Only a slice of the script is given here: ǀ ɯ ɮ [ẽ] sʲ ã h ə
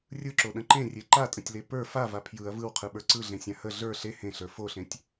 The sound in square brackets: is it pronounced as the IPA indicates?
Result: yes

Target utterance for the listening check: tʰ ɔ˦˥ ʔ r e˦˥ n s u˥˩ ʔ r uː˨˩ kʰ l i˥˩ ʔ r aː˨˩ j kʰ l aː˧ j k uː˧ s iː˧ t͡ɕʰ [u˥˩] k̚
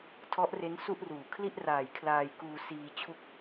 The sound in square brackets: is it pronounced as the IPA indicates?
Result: yes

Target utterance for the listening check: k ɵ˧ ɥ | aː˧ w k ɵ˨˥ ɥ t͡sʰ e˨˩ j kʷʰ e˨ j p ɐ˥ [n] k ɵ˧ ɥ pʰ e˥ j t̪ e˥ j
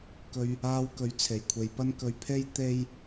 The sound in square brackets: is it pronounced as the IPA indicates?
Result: yes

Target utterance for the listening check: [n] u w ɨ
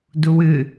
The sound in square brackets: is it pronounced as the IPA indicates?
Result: no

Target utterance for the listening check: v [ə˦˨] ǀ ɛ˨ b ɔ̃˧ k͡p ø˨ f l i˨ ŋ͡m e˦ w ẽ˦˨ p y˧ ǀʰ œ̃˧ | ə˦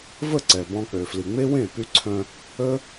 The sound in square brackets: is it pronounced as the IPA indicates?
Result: yes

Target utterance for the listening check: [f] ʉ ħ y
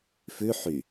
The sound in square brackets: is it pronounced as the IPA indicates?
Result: yes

